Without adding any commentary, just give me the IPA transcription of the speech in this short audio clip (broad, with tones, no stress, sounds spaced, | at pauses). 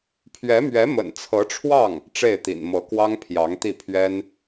pʰ ɥ ɛ˧˥ m ɥ ɛ˧˥ m ə̰˨˩ n t͡sʰ ɤ˧˥ ʈ͡ʂʰ w ɑ˥˩ ŋ | ʈ͡ʂ e˥˩ ɪ̯ t̪ ḭ˨˩ n m ɤ˧˥ k w ɑ˥ ŋ pʰ j ɑ˧˥ ŋ t̪ i˥˩ pʰ ɥ ɛ˥ n